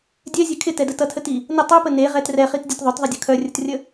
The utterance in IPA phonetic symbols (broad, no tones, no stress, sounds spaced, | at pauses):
dʲ ɛ zʲ e kʰ ɪ t ɛ d ə t ʌ tʰ ə t i | n ə tˤ œ p ə n e ʁ ɛ t r ɛ χ i t dʲ ə t ðˤ œ t ðˤ ʌ dʲ ʌ kʰ œ rʲ ə t rʲ ə